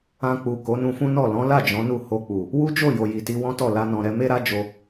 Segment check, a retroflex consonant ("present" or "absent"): absent